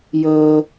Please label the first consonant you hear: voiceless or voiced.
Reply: voiced